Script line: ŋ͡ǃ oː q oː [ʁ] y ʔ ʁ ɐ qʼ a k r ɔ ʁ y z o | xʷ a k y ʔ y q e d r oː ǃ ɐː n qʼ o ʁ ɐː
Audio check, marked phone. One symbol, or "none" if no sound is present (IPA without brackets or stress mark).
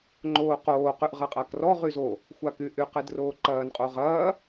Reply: q